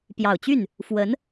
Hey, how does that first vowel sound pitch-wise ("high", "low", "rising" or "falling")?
low